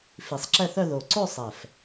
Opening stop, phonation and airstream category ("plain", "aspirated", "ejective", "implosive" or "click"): click